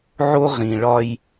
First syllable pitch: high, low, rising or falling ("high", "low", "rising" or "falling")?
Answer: high